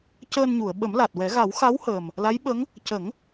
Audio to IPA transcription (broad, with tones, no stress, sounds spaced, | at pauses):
c əː˧ n ɲ u˨˩˨ ə̯ ɓ ə˨˩˦ m l a˨˩ t̚ w ɛ˨˩˦ ɣ a˨˩˦ w x a˧˥ w h əː˨˩ m | l a˧˥ j ɓ ə˧˥ ŋ | c ə˨˩˦ ŋ